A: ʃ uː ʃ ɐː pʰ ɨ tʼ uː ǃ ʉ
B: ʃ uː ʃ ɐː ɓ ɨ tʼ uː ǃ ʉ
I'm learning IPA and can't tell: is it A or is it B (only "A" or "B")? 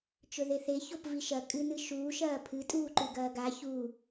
A